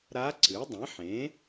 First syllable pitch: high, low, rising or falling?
rising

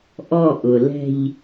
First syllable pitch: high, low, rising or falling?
falling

